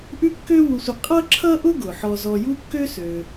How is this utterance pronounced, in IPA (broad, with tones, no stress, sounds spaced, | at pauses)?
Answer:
ʔ ʉ˥ kː ø˥ w u˧ sʷ ʌ˧ qʼ ʌ˥ ǁʰ ʌ˥ ʔ ʊ˥ ɡ ʊ˩ ħ ɔ˧ z ɔ˧ j u˥ kː ø˥ s ø˩